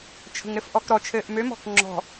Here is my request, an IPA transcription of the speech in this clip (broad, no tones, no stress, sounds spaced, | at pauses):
t͡ʃʰ ə̤ ŋ ɾ ɘ f ʔ ɔ k ɾ ɔ t͡ʃʰ ɘː ʔ m ø m ɔ̤ k ŋ͡ǁ ɔ̤